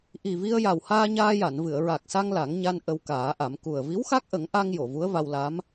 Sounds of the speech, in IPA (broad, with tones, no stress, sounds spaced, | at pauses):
ʔ i˨˩ v i˧ ə̯ j a˨˩ w h aː˧ ɲ aː˧ j a˨˩˨ n v ɨ˨˩˨ ə̯ ɹ a˨˩ k̚ s a˧ ŋ l a˨˩˦ ŋ ɲ a˧ n ʔ ə˧ w k aː˨˩˦ ʔ a˨˩˦ m k u˨˩ ə̯ v i˧˥ w x a˦˥ k̚ ʔ ə˨˩˦ ŋ ʔ a˧ ŋ j o˨˩˨ v u˧˥ ə̯ v a˧ w l a˧˥ m